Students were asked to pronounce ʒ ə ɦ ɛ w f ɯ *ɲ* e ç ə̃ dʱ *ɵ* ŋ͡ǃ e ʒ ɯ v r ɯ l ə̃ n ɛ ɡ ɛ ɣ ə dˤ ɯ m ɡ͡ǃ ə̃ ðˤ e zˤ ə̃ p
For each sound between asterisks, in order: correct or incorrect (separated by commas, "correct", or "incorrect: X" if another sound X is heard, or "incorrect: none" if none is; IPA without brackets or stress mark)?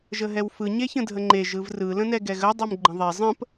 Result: correct, incorrect: ə